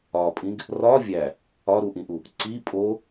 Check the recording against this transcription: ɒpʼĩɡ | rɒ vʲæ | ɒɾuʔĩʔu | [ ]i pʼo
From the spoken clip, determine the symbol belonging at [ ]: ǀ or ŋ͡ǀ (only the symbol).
ǀ